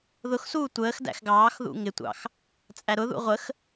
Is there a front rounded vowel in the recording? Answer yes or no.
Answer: no